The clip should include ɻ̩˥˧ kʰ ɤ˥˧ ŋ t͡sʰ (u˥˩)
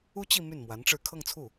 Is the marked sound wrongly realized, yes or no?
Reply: no